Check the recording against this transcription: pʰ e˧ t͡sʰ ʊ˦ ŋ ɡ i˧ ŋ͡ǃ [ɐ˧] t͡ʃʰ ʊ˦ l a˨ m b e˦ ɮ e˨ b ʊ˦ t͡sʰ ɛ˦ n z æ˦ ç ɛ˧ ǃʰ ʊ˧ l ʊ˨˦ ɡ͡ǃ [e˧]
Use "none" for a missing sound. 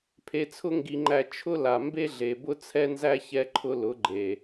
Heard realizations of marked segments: æ˧, e˨

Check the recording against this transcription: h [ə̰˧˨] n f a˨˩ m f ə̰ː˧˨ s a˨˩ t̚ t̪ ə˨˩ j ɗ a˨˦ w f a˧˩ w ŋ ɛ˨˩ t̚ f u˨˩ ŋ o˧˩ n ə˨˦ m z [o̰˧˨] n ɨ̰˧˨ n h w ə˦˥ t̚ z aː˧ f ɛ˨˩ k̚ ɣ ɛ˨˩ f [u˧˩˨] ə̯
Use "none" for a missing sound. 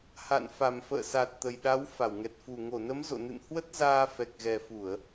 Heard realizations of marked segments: a̰˧˨, o̰˧˨, u˧˩˨

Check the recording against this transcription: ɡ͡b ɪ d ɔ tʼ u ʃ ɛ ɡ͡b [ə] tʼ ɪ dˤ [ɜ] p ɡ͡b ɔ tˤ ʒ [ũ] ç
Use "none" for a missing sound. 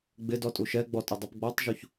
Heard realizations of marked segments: ɔ, ɛ, u

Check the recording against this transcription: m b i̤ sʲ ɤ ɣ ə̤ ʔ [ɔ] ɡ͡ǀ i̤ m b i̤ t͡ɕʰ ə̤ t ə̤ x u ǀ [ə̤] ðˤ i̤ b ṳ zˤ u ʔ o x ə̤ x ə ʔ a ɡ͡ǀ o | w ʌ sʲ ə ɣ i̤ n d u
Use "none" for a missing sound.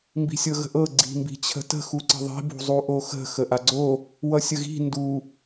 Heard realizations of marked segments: ɤ, ə̤

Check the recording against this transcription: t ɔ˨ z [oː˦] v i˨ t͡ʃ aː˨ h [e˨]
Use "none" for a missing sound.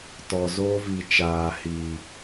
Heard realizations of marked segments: oː˦, i˨

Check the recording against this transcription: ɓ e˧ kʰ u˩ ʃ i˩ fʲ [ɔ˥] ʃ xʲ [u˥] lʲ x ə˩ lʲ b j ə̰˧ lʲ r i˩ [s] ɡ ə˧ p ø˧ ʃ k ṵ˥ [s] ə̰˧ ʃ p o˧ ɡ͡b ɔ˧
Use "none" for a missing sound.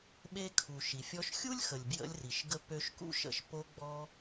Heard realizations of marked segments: ɔ˧, u˥, ʃ, ʃ

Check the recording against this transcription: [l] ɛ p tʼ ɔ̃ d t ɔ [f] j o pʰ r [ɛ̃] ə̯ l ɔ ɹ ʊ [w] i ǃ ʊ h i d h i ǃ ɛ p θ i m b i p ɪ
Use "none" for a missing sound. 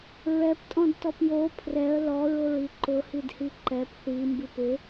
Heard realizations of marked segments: ɹ, p, ɛ, ɹ

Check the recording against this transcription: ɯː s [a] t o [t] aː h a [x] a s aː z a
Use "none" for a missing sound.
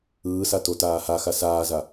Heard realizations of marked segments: a, t, x

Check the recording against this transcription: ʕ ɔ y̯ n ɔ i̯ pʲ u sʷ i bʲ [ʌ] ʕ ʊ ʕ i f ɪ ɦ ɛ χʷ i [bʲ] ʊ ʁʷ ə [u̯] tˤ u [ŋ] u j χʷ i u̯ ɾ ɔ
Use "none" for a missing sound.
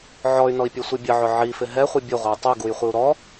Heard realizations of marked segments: ə, bʲ, y̯, ɡ

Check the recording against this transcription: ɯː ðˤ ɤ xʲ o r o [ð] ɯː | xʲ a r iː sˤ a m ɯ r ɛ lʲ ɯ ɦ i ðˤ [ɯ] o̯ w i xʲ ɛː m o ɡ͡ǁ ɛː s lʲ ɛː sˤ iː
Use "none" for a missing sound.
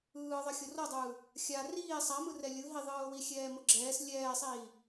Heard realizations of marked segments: dˤ, ɯː

